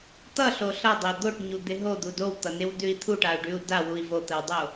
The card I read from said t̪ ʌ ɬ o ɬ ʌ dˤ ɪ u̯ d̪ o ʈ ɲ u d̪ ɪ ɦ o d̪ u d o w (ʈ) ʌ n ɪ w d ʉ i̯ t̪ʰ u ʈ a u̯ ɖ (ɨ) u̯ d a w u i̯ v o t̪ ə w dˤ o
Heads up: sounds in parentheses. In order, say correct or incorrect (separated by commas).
incorrect, incorrect